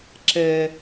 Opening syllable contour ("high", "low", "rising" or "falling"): high